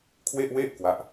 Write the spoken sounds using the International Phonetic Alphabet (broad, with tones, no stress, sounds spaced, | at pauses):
kʰ w e˥˩ ʔ w e˥˩ ʔ k w a˦˥ ʔ